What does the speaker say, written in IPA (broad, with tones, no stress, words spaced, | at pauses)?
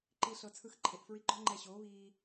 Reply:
ǃiː˧ɬɤ˧ t͡sʰɯ˧xǃʰe˨ʔ fɹi˧ɡ͡ǃɔ˦ ŋ͡ǃɛ˧ ɕoː˨˦βiː˧